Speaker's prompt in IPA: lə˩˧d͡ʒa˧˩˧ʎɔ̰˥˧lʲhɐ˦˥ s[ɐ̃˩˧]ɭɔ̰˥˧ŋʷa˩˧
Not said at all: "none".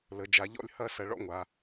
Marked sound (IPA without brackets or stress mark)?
ɐ˩˧